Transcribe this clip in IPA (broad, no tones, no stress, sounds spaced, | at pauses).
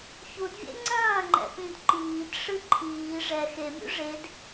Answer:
ç u d vʲ ḛ ŋ͡ǀ ɐ̃ː ŋ͡ǃ ɛ̰ p ĩ d ǃ iː d ʂ ɨ ǃʰ iː ʐ ɛ x e mʲ ṵ ʐ e d